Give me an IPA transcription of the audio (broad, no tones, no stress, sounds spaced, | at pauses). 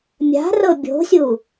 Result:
mʲ a̤ r ɤ bʲ o̤ sʲ u